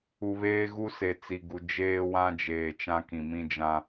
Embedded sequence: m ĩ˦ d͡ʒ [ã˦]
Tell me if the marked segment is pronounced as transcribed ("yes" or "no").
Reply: yes